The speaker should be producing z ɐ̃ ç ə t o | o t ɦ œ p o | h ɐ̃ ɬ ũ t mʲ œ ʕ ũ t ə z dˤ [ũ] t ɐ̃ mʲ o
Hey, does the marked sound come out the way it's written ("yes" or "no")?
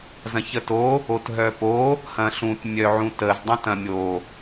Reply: yes